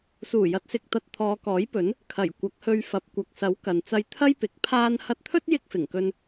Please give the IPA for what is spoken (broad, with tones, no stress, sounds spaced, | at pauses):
s uː˨˩ j ɐ˨˥ t̚ s ɪ˨ k̚ t̪ ɐ˧ t̚ t̪ʰ ɔː˨˧ k ɔː˨˥ j p ɵ˨˥ n | kʰ ɐ˨˩ j kʷ ɐ˨˥ k̚ h ɵ˧ ɥ f ɐ˨˥ p̚ kʷ ɐ˨ k̚ s ɐ˨˥ w k ɐ˨ n t͡s ɐ˥ j t̪ʰ ɐ˥ j p ɪ˨˥ k̚ pʰ aː˧ n h ɐ˧ t̚ t̪ʰ ɵ˥ t̚ j ɪ˥ k̚ f ɪ˨˩ ŋ k ɵ˧ n